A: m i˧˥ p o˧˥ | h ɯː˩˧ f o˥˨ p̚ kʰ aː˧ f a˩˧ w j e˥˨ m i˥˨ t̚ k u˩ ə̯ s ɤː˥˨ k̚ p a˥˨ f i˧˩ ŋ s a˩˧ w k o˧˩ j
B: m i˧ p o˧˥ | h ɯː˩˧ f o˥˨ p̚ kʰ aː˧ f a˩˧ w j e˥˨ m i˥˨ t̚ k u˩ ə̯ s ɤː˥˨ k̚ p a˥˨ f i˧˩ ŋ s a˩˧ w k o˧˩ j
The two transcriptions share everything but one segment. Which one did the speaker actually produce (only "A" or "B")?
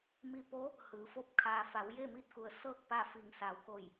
B